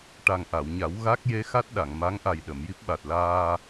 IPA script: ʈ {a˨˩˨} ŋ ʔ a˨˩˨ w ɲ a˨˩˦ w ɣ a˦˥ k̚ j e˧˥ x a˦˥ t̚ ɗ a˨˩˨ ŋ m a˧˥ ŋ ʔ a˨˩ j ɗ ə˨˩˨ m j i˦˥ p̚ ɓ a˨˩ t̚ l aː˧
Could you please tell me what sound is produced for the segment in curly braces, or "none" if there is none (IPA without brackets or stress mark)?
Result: a˨˩